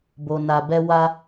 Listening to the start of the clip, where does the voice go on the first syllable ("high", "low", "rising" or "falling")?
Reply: low